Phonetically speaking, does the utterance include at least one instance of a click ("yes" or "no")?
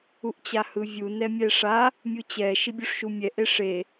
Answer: no